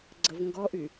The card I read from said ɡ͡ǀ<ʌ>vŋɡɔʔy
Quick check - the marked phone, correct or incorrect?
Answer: incorrect